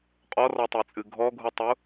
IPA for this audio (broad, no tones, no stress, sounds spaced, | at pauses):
qʼ ɔ r ɔ tˤ e t͡sʼ ɨ ɡʱ ɔ ɡʱ u tˤ u